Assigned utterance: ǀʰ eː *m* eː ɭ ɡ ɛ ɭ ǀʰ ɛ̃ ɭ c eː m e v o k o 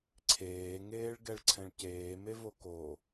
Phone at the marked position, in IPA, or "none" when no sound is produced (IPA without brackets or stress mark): ŋ